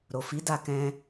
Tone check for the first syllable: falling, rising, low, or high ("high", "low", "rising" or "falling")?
low